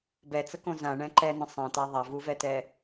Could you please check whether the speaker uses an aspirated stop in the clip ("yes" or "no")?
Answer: no